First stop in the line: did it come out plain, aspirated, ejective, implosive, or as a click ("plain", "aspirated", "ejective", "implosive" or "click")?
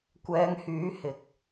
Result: plain